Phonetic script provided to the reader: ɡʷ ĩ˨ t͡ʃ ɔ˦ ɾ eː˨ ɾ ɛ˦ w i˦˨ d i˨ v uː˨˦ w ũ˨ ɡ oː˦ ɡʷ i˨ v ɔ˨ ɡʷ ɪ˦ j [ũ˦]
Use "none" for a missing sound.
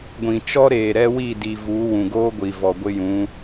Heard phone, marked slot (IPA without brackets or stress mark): ũ˨˦